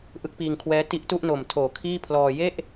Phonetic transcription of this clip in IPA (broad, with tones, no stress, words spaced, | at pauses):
ʔɯ˥˩k̚piː˧ŋkʰwɛː˦˥ ti˦˥ʔtu˥˩ʔno˨˩mtʰoː˩˦ kʰiː˥˩pʰlɔː˧ je˥˩ʔ